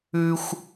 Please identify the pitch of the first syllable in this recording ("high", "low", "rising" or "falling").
high